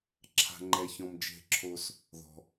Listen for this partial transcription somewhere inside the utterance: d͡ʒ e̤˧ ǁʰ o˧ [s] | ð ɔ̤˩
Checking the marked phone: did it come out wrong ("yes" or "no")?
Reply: no